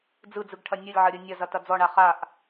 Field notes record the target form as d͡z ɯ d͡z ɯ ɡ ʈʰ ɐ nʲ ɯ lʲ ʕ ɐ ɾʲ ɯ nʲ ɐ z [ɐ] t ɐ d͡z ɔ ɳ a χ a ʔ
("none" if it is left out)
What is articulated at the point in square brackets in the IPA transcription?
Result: ɐ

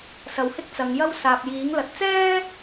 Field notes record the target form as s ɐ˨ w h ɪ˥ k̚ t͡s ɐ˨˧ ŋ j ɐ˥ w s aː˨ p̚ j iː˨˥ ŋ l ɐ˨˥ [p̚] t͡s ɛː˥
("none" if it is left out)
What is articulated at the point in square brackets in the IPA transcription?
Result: t̚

